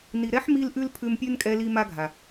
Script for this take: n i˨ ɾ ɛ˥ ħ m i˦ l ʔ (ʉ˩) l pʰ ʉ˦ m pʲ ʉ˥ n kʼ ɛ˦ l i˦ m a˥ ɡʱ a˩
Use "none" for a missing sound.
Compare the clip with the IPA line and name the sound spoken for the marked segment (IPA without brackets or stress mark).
ʉ˦